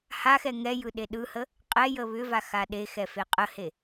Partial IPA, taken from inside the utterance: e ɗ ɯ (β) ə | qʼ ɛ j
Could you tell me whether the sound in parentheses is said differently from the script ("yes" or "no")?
yes